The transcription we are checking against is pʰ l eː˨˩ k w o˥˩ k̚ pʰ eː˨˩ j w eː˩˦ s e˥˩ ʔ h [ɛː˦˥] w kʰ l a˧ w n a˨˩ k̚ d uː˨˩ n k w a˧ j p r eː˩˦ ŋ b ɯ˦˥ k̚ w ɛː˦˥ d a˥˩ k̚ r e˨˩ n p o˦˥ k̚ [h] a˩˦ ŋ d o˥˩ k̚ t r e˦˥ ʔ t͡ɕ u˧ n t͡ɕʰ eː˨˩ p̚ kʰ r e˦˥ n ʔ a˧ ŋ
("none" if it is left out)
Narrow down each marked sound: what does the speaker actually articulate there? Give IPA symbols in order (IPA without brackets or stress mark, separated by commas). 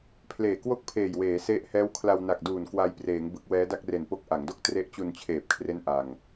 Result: ɛː˦˥, ʔ